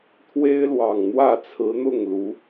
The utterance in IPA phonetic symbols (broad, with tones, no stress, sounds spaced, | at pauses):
t̪ʰ w e˥ ɪ̯ l w ɑ˨˩ ŋ n̪ w ä˥˩ t͡sʰ ɹ̩˧˥ n̪ ʊ˥˩ ŋ l u˧˥